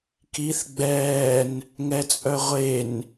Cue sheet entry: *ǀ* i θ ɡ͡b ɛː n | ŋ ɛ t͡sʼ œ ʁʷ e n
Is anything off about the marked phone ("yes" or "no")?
yes